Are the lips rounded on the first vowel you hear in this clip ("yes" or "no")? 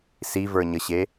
no